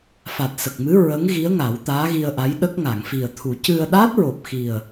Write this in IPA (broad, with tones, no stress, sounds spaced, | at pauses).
f a˨˩ t̚ s ə˨˩ k̚ m ɨ˧˥ ɹ ə˧˥ ŋ ɣ i˧˥ ə̯ ŋ a˨˩˦ w t̪ aː˧˥ ɣ i˧ ə̯ ʔ a˧˥ j ɗ ə˦˥ k̚ ŋ a˨˩˨ ŋ f i˨˩ ə̯ t̪ʰ u˨˩˦ c ɨ˧ ə̯ ɗ aː˦˥ t̚ ɹ o˨˩ p̚ x i˨˩ ə̯